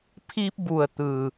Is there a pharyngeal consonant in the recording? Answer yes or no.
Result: no